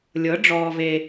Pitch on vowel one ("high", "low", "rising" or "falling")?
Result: rising